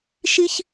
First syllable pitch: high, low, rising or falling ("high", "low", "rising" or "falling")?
high